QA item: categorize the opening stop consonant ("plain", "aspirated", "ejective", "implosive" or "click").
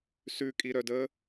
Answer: ejective